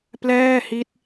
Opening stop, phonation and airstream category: plain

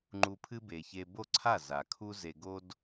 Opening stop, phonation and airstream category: click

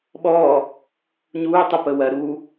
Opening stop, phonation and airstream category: implosive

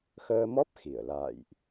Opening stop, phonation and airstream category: plain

